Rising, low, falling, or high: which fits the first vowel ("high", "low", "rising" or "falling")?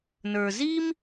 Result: low